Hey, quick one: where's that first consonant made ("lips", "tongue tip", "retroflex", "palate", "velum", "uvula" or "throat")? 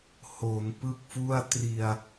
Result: throat